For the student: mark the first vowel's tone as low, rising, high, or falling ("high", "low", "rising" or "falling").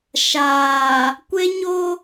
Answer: low